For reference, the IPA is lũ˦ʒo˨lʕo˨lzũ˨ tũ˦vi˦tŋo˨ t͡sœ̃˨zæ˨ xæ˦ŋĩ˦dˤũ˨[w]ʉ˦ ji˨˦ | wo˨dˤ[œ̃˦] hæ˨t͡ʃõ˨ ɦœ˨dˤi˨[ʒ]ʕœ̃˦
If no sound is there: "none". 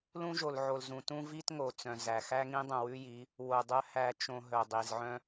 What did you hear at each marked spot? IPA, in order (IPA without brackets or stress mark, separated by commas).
w, œ˦, z